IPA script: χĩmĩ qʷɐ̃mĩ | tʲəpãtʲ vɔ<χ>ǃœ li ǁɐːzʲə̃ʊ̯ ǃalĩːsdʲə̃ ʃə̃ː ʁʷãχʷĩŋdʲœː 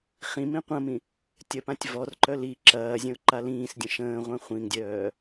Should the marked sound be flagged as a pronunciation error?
yes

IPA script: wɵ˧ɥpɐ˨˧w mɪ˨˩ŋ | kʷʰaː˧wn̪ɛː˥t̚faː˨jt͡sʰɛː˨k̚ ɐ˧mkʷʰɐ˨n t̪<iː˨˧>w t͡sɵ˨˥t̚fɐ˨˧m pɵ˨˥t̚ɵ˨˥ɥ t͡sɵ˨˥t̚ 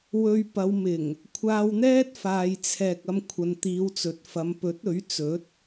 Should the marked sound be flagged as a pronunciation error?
no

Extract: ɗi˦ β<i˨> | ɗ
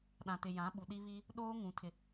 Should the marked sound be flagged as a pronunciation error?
yes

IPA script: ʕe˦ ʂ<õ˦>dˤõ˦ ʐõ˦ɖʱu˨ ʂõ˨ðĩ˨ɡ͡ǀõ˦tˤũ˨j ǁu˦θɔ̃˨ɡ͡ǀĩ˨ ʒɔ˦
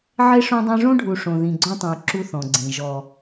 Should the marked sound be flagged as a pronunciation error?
no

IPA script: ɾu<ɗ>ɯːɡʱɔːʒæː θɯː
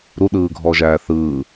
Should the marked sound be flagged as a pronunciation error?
no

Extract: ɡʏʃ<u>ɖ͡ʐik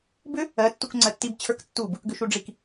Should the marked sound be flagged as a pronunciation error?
no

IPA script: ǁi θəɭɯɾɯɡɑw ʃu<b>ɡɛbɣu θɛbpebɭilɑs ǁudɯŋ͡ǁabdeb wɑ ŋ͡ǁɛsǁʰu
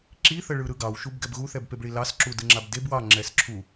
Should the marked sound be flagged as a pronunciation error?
no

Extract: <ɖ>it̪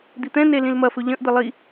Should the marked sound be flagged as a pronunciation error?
yes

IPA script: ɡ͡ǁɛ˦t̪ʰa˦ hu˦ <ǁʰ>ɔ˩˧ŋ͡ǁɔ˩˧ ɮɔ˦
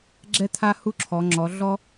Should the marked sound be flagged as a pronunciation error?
no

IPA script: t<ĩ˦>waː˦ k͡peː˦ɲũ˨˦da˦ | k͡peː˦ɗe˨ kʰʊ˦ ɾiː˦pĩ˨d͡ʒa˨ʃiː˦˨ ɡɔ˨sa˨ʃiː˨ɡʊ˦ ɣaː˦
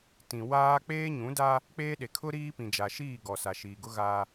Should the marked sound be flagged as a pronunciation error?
yes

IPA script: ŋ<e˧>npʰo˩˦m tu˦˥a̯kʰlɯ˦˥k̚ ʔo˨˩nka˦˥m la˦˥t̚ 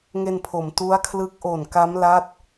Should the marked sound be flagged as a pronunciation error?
no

